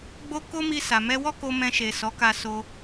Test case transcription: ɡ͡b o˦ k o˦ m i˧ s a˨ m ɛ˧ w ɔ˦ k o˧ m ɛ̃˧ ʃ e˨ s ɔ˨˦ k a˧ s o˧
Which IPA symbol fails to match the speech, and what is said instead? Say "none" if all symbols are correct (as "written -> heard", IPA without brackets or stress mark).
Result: none